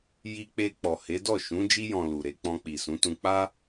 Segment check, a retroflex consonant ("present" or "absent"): absent